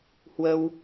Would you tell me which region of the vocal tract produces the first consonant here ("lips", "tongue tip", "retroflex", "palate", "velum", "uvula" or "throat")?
throat